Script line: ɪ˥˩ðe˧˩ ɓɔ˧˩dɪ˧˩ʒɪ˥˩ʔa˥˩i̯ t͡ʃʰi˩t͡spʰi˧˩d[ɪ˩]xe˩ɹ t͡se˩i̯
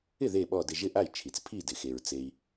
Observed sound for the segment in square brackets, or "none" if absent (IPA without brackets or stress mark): ɪ˩